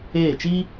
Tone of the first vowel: falling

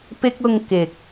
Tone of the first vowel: high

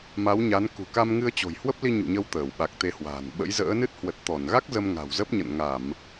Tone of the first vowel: rising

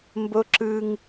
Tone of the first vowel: high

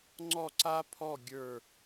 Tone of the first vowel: falling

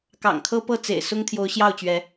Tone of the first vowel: low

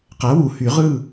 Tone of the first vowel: rising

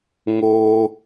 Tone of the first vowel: high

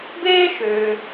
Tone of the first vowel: high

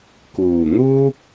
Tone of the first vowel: low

